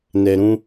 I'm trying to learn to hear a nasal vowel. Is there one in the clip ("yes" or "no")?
yes